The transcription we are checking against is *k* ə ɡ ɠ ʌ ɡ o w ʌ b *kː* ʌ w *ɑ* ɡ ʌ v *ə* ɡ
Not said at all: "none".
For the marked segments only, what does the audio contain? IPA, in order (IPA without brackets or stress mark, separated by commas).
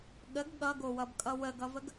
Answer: ɠ, kʼ, ə, ə